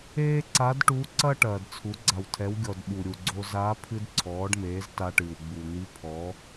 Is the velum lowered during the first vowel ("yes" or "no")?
no